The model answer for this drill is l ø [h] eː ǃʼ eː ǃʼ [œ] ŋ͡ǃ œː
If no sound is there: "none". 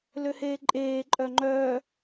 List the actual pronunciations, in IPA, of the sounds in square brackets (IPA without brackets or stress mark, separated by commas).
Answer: h, œ